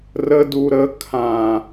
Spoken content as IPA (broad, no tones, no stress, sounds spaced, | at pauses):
r ə d u ɾ ə kʰ ã